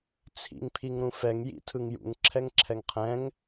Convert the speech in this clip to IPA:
t͡sʰ ḭ ŋ pʰ i ŋ ɾ ũ f ɛ ŋ j ḭ tʰ ɯ ŋ j ṵ ŋ ǁʰ ɛ ŋ ǁʰ ɛ ŋ qʰ ɛ̃ ŋ

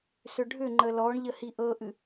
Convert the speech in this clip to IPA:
s ʏ ɖʱ ʏ ŋ͡ǃ ə l ɔ ɳ ʎ ə h i ʔ ɤ ʔ ɨ

